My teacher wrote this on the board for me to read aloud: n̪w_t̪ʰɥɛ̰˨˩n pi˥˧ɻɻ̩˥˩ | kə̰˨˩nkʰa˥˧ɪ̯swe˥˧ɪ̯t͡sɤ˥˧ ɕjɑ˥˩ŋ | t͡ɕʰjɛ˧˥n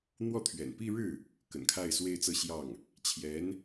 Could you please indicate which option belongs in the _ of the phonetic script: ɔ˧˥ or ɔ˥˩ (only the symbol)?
ɔ˥˩